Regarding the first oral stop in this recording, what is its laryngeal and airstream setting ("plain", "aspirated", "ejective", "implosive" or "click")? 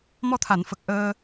aspirated